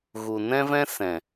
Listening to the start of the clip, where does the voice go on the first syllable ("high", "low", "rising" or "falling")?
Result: low